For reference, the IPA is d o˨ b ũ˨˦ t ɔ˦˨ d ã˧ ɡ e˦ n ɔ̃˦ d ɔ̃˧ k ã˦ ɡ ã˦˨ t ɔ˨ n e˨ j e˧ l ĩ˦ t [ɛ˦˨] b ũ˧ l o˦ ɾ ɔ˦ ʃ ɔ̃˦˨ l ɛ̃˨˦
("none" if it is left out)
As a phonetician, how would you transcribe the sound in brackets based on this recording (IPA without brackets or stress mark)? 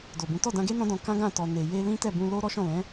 ɛ˦˨